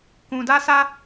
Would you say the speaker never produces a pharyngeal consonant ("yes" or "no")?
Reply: yes